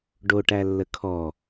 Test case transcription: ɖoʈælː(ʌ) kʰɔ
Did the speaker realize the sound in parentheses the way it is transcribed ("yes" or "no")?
no